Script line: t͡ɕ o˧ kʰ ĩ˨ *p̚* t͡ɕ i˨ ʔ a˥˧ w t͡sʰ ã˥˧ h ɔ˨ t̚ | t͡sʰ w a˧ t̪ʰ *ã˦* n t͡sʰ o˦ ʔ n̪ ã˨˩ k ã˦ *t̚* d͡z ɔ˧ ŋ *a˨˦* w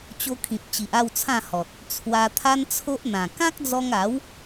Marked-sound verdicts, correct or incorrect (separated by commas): correct, incorrect, incorrect, correct